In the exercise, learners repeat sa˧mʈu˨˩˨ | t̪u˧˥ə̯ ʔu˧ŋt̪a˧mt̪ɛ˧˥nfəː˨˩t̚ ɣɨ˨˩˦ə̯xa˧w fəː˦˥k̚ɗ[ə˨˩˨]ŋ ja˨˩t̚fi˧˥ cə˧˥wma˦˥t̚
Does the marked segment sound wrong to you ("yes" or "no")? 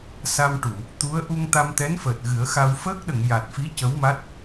no